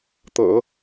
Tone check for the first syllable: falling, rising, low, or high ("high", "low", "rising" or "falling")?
low